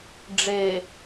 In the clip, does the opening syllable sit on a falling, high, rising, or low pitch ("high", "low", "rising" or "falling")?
low